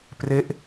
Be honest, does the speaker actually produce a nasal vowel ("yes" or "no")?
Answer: no